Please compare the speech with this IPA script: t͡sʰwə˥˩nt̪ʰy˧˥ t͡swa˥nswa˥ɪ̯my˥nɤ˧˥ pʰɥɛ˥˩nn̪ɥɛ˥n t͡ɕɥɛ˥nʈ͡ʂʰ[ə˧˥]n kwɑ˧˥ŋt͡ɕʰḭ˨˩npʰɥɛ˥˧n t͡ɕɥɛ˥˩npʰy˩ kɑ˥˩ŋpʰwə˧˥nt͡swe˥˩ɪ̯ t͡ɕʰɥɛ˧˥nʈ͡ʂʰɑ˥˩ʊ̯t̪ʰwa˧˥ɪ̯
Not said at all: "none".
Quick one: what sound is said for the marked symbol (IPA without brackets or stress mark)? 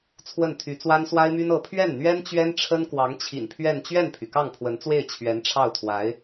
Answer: ə˥